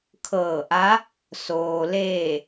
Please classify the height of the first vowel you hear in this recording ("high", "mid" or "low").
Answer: mid